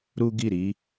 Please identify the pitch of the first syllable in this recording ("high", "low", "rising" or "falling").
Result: high